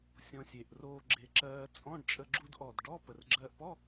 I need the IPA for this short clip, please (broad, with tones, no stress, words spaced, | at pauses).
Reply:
sʲɔ̃˧sʲe˨˩ʔ roː˧ɡ͡ǁe˨˩ǁɜː˧ t͡sʼɔ̃˧˥˧ɖt͡ʃʼə˧ ɡ͡ǁu˧dʔɔ˨˩d ɖɔ˧˥˧ pə˨˩rɡ͡ǁɜː˧ʔpɔ˧˥˧